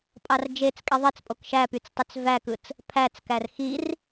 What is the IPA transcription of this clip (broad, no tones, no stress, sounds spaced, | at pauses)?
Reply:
pʼ ɑ r d͡ʒ e t͡s kʼ e ðˤ i t͡s pʼ o k ʃ æ p y t͡s tˤ y t͡s v æ k ɯ t͡s | pʰ æ t͡s k æ r x i r